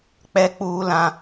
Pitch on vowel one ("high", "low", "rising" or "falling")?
low